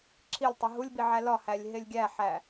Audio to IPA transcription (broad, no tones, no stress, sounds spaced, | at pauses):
ǁʰ i lʲ tˤ o ɦ u lʲ b i ʕ æ l ɒ h æ lʲ ɦ e lʲ ɡʲ æ ħ æ